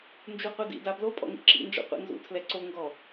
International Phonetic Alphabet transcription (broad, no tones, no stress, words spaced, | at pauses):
nd͡ʒuqʷidḭda blopʼɔ̰ŋḭ ǁḭnd͡ʒɔ̰qʷḭ nzṵtʰlɛ ǀo ŋɡɔ